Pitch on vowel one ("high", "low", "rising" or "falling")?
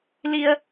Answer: low